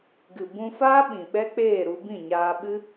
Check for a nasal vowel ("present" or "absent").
present